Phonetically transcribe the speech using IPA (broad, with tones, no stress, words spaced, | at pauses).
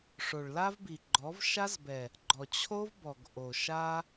ʂo˨ɭla˦vbi˨ɡ͡ǃɔ˨˦v ʃa˦zbɛ˨ | ɡ͡ǃɔ˨t͡ɕʰo˦vbɔ˨ɡ ʔo˨ʃa˦